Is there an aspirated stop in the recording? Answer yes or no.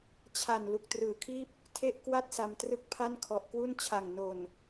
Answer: yes